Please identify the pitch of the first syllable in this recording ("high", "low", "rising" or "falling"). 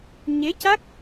rising